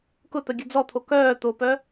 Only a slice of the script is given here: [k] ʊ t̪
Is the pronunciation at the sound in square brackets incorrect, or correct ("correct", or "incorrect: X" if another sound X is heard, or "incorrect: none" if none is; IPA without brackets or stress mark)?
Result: correct